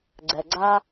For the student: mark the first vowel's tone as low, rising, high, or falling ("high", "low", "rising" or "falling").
low